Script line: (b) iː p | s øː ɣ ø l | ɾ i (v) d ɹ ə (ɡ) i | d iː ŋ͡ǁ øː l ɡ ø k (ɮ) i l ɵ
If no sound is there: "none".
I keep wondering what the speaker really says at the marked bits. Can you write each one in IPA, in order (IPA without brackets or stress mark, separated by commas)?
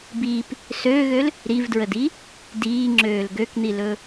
b, v, d, n̪